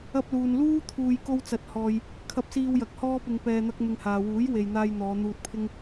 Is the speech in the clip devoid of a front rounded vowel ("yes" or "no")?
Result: yes